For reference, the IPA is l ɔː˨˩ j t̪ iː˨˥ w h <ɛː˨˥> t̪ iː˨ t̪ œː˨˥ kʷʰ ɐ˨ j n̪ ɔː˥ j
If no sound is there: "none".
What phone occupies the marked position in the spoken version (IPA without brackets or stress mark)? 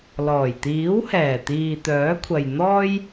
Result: ɛː˨˩